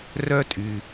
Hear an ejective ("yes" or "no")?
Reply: yes